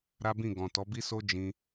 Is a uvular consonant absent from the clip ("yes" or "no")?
yes